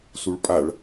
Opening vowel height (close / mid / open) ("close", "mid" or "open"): close